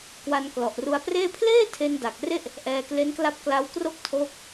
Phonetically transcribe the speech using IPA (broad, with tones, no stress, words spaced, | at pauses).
kwa˧nklɔ˨˩ʔru˧a̯preː˥˩ pʰleː˥˩ tʰe˧n da˨˩k̚ re˥˩ʔ | ʔɛː˧kle˦˥nkla˦˥p̚ kla˦˥wkro˥˩k̚ tʰoː˥˩k̚